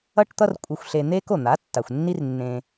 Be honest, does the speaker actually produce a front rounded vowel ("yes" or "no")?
no